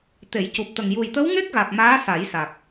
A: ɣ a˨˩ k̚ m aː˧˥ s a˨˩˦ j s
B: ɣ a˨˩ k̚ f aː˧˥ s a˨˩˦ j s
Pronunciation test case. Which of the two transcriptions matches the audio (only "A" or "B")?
A